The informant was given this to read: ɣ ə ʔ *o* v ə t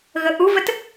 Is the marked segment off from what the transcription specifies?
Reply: yes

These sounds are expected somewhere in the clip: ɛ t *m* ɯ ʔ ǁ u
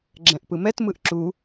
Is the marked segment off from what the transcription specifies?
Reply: no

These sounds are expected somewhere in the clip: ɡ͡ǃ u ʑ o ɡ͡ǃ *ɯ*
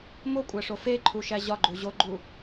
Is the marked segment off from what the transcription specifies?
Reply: yes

